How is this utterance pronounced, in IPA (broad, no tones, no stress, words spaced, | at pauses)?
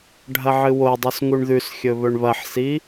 ɖʱɐʕɨwodˤɵs ŋuɳðʉsxʲɵ βɵɳβɐħsi